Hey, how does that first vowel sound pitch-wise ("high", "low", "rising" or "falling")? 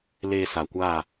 low